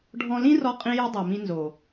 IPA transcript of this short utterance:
ɖʱ ɔ̃˧ l ĩ˦ r ɔ˦ qʼ ĩ˦ j i˦ dˤ a˨ m ĩ˧ n z o˨

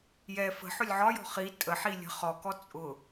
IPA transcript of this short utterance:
j ɛ f ə̤ ħ ʊ lʲ ʕ ɒ j ɔ̤ χ i tʼ ə ħ i lʲ ə̤ χ ɔ k ɔ t͡sʼ ʊ

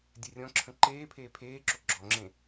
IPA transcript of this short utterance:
dʲ ɛ rʲ ɔ̃ ǁʰ ə̃ ǃ eː pʰ eː pʰ eː ǁ o ɡ͡ǁ ɔ ŋ͡ǁ ẽ

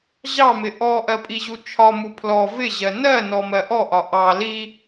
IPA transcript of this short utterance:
ʑ ɑ m ɪ ʔ ɔ ʔ ɜ pʼ i ʑ u t͡ʃʰ ɒ m u pʰ l ɔ v ɪ ʑ ɜ n ɜ n ɔ m ɜ ʔ ɔ ʔ ɒ ʔ ɑ l i

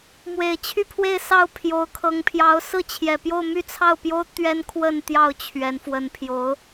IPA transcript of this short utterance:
m w e˨˩ ɪ̯ t͡ɕʰ y˥˧ pʰ w e˥˧ ɪ̯ s ɑ˥˩ ʊ̯ pʰ j o˧˥ ʊ̯ kʰ ɤ˧˥ ŋ pʰ j ɑ˧˥ ʊ̯ s ɹ̩˥˩ t͡ɕʰ j ɛ˨˩ p j o˥˧ ʊ̯ m y˥˧ t͡sʰ ɑ˥˩ ʊ̯ p j o˥ ʊ̯ t̪ ɥ ɛ˥ n kʰ w ə˥˧ n t̪ j ɑ˥˩ ʊ̯ t͡ɕʰ ɥ ɛ˧˥ n f w ə˧˥ n pʰ j o˧˥ ʊ̯

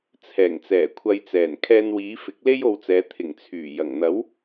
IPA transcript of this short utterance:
t͡sʰ ɛː˨˩ ŋ t͡s ɛː˨˩ kʷʰ ɐ˨ j t͡s ɛː˨˩ n kʰ ɛː˧ n w iː˨˧ f ɪ˨˥ k̚ l e˥ j o˧ w t͡s ɛː˨˧ t̪ʰ ɪ˨˩ ŋ t͡sʰ yː˨˩ j ɐ˨˩ ŋ n̪ ɐ˨˥ w

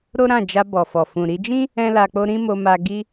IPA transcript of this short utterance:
ɾ o˦ ɾ ã˦˨ d͡ʒ a˧ b ɔ˨ f ɔ˨ f ũ˨ ɾ i˧ d͡ʒ ĩ˦ | ɛ̃˦ l a˧ k͡p o˦ ɾ ĩ˦ m o˧ m a˧ ɡ i˦

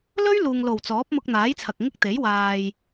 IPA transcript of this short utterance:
l ɵ˥ ɥ l uː˨ ŋ l o˨˩ w t͡s ɔː˨˥ p̚ m ʊ˧ k̚ n̪ aː˨˥ j t͡sʰ ɐ˨ k̚ ŋ ɪ˥ k̚ t̪ e˨˥ j w aː˨ j

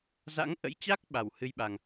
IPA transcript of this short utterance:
z a̰˧˥ ŋ ʔ ə̰˧˥ j t͡ɕ a˦˥ k̚ ɓ a˧˩ w h ɨ˧ j ɓ a˨˩ ŋ

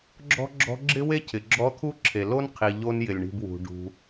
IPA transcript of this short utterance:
ɡ͡ǁ ɔ̤˥ ɡ͡ǁ ɔ̤˦ ɡ͡ǁ ɪ˥ w e˥ cʰ ɪ˩ ɡ͡ǁ ɔ˦ t̪ʰ u˥ ǁʰ e˩ l o˥ n qʰ i˩ ʎ o˦ n j ɪ˩ lʲ ɳ i̤˨ b w ṳ˩ ɖ ṳ˩

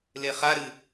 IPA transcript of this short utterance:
l e χ a ɾ ɨ

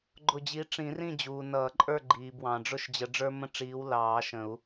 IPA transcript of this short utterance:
ɡ͡ǃ ʊ˧˩ d͡ʑ i˨˦ ʈ͡ʂ ĩ˨˩˦ r ĩ˥˨ d͡ʑ uː˩ n ʌː˨˩˦ ǃʼ ə˞˥˨ ɡ͡ǃ iː˩ b w ɑ̃˩ ɖ͡ʐ ʊ˥˨ ʃ d͡ʑ ə˨˦ ɖ͡ʐ ə˞˦ m ə̃˦ ʈ͡ʂ iː˨˦ w l ɑː˨˩˦ ʃ ə̃˨˩˦ u̯

